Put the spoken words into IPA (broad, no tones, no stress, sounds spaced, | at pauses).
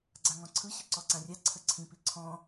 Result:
ɡ͡ǀ a ŋ ɔ̃ ǀʰ ɯ ɕ ɯ ǀ ɔ ǀ ã rʲ a ǀʰ ə ǀʰ ĩ p i ǀʰ ɔ̃